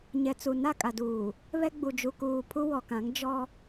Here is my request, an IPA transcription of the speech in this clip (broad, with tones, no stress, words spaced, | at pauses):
ɲɛ˨t͡su˨ na˦˨kʼa˨duː˨ | βɛ˦ɡ͡bu˨ d͡ʒu˨kuː˨ pʰu˦wɔ˨kã˨˦ŋ d͡ʒɔ˦